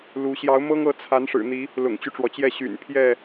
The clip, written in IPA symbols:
l u˨˦ ɕ j ɑ˨˦ ʊ̯ m ɤ˦ ŋ ɤ˨˦ t͡sʰ a˨˦ n ʂ ɻ̩˨˩ n̪ i˨˦ | l ʊ̰˨˩ ŋ t͡ɕ y˦ ʈ͡ʂ w ɔ˩ t͡ɕ j ɛ˥˨ ɕ y̰˨˩ n pʰ j ɛ˥˨

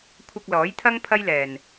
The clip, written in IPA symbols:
kʷʰ ɐ˧ k̚ l ɔː˨˥ j t̪ʰ ɐ˥ ŋ pʰ ɐ˥ j l ɛː˨ n

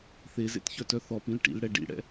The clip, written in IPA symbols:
θ e z ḛ t ç œ t œ θ ɔ p ĩ l ʈ ḭ l ɽ ɛ ɖ ḭ ɽ ɛ̰

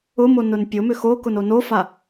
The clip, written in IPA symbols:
ʊ m o n ʊ n pʲ ʊ m ʏ x o k ʊ n o n o f a

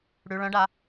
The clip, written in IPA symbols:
ɽ ʉ ɭ œ̃ ɖ a

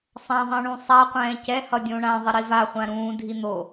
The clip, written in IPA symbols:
sˤ ã ðˤ ɛ̃ ɳ ũ sˤ a qʷ ɛ̃ː c ɛ h ʌ dʲ õ ɳ ã ðˤ i ɾ i v a χʷ ã ɾ ũː dʱ i n̪ o

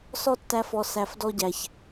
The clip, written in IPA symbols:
s ɔ˦ tː æ˧ f ɔ˨ s æ˨ f d ɔ˧ ɟ æ˨ ç

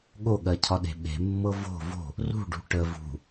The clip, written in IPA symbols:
ɠ o ɠ ɜ cʰ ɒ ɗ e̤ ɓ e̤ mː ɤ v o̤ v o̤ | r ṳ ɖ ṳ ʈ ə v ṳ

